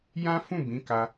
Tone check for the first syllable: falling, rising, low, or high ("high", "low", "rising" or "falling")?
high